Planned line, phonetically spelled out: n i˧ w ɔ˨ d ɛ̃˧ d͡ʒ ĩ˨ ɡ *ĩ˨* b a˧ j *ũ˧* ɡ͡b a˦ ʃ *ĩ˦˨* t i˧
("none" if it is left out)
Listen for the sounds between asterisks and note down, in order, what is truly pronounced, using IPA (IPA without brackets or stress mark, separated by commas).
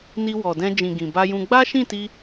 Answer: ĩ˨, ũ˧, ĩ˦˨